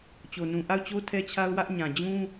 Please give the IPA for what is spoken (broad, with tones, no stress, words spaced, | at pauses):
t͡ɕo˨nũ˨ ʔa˦˨ʊ̯t͡ɕo˦ tʰɛ˦t͡ɕʰa˦ʊ̯wä˦ʔ ɲã˨d͡ʑũ˦